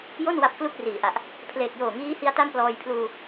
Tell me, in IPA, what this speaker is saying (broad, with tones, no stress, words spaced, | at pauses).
jo˥˩n wa˦˥p̚klu˥˩k̚riː˨˩ʔa˨˩ʔ | pʰleː˨˩k̚joː˨˩ŋiː˦˥hi˧a̯ ta˥˩mplɔː˧j pʰluː˧